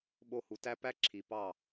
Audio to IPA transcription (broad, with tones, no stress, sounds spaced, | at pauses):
ɓ o˧ h u˨ t æ˦ p æ˦ ǁʰ i˨ p ɑ˦˨